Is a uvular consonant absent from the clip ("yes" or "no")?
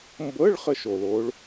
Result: no